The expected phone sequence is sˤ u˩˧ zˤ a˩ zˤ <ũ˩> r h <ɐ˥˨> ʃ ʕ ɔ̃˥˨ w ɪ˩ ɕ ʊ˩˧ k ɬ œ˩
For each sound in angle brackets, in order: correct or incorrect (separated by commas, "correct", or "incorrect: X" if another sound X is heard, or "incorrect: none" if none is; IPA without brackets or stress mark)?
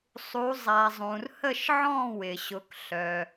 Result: correct, incorrect: ə˥˨